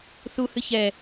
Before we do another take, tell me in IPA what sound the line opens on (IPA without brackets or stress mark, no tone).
θ